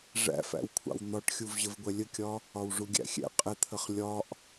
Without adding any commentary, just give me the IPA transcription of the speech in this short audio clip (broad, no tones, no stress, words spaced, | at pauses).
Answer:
ʐæ̰fæ̰wkʷʰɑ̰w n̪ɒʈxʲuv ʑəvɡʷɛlʲəkʲɒ | ɒwʐuɡʲæ̰xʲɛ̰ qʼɪt̪ʰəχ lʲɒʔ